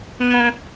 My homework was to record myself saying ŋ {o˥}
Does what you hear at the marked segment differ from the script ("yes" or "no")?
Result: yes